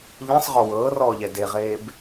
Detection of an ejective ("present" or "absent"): absent